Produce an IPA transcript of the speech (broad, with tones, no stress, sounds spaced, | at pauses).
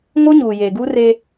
ŋ o˦ ɲ uː˨ j eː˨ ɡ uː˦ r eː˦